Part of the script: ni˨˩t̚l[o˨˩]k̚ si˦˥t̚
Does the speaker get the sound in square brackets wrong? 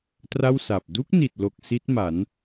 no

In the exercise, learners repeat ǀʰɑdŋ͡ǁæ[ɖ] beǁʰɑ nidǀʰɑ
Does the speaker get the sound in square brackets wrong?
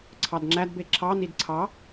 yes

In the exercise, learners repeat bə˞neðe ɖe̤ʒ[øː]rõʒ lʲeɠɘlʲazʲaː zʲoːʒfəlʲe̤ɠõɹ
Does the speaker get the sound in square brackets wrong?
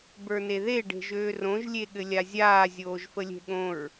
no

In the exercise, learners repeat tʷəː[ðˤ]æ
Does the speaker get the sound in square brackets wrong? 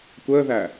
yes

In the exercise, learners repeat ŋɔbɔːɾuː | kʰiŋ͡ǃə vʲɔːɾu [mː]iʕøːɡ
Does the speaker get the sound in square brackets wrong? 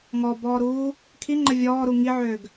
yes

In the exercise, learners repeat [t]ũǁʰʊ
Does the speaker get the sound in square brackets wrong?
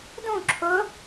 yes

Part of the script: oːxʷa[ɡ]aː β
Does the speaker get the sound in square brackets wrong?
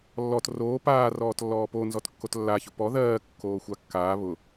yes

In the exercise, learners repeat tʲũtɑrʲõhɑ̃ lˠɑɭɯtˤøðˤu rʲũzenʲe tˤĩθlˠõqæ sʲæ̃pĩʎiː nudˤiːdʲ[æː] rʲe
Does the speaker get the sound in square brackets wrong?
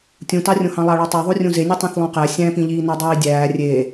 no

